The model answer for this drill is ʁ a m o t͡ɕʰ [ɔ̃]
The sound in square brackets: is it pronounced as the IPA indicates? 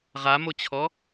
no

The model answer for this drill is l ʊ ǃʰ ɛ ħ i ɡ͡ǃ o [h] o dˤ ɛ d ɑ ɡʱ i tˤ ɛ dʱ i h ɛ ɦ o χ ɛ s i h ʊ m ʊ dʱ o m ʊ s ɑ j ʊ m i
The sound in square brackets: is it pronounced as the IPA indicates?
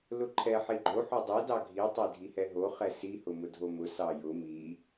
no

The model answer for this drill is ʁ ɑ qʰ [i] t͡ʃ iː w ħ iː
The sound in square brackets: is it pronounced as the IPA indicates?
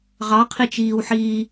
yes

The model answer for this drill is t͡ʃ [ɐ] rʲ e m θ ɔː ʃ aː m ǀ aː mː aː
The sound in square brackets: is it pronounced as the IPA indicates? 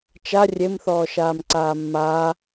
no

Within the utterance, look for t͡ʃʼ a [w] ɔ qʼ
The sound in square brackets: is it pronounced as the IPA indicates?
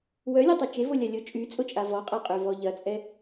no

